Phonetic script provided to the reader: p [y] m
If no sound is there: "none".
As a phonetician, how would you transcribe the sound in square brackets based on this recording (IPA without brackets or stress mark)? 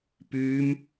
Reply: y